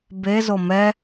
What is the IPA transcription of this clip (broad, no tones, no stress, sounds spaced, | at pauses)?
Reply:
b e z o m ɛ